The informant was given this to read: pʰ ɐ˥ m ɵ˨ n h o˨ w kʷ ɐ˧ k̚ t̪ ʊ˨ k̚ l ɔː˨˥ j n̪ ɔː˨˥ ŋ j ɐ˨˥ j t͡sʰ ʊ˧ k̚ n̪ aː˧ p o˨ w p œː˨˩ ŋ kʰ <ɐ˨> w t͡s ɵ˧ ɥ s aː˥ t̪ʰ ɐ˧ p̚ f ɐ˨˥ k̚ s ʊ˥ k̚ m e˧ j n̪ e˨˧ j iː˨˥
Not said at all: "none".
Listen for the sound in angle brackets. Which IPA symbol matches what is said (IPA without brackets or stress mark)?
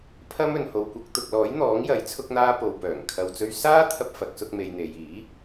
ɐ˨